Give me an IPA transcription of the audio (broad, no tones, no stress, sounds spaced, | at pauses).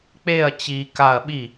k͡p e ɐ̯ t͡ɕ i k a ɐ̯ ɓ i